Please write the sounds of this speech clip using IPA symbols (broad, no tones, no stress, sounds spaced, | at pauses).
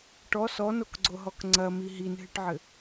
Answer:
ʈ ɔ s ɔ n o k ɡ͡ǀ o ɦ ɔ k ŋ͡ǀ ɐ m i ɦ i n ɦ ɨ ʈ ʕ ɘ